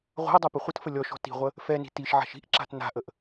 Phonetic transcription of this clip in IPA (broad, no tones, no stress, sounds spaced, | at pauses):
ʁʷ a̤ ə̯ dˤ ɛ p ə χʷ ə t f ə lʲ ɔ ʃ ɔ̤ t i̤ ʁʷ ə | f ɛ n i̤ t i ʃ ʕ a̤ ʃ i̤ ʔ ǁ a̤ t n a̤ ʔ ə ʔ